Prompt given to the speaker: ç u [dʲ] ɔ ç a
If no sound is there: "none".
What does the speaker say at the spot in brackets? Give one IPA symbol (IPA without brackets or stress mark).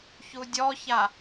dʲ